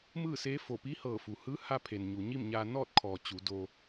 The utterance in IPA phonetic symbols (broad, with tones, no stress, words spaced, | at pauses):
mɯː˥˨seː˧˥fo˧˩ pi˧˥hɤː˧˩fu˩hɯː˧˥ ha˧pʰe˩n ɲu˩ ɲi˥˨mɲaː˧ nɔː˥˨t̚kʰɔː˩ t͡ɕu˩˧do˧